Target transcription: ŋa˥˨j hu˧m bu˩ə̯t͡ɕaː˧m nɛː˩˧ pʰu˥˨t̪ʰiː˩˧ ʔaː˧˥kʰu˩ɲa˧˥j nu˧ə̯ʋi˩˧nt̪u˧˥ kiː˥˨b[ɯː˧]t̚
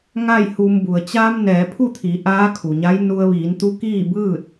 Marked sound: incorrect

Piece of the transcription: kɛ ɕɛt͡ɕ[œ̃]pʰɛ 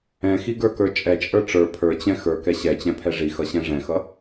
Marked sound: incorrect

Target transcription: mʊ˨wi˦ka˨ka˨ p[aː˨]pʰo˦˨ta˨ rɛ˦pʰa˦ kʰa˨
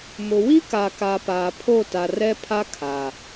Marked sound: correct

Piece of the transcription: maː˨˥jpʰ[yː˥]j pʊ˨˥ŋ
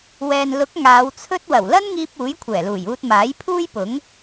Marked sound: incorrect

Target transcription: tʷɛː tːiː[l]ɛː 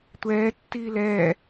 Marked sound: correct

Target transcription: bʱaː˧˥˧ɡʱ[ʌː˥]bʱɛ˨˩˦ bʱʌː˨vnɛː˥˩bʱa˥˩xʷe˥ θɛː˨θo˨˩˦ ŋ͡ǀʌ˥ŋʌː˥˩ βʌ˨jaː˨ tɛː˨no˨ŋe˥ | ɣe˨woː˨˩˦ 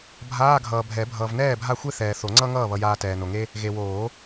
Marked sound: incorrect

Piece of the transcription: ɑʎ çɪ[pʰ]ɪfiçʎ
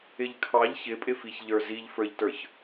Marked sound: incorrect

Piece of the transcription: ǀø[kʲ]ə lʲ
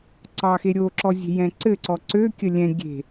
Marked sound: correct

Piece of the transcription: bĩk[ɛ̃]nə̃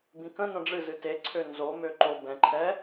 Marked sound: incorrect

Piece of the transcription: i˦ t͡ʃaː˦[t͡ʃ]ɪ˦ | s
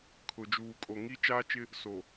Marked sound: correct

